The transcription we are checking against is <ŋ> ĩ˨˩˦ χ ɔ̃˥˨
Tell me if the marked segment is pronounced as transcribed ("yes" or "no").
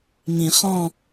yes